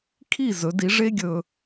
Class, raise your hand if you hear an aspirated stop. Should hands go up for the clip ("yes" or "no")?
yes